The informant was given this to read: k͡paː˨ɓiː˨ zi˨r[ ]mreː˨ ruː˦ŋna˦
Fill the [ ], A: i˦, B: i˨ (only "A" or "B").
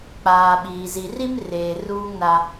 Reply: A